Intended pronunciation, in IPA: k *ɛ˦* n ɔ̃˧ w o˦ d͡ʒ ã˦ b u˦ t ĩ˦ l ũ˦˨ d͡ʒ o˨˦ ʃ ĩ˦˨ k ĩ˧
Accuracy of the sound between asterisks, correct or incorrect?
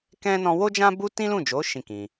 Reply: incorrect